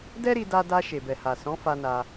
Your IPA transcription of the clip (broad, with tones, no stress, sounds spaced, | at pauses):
d ɛ˦ ɾ i˧ d a˧ d a˧ ʃ e˨ b ɛ˨ h a˨ s ɔ̃˨˦ f a˧ n a˧